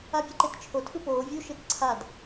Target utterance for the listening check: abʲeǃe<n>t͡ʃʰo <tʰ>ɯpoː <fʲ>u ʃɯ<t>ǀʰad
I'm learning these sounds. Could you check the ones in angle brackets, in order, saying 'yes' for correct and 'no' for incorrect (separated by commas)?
no, yes, no, yes